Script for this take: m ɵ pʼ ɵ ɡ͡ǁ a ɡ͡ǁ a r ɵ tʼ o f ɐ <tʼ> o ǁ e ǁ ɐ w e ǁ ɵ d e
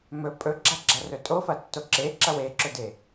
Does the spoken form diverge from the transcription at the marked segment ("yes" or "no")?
yes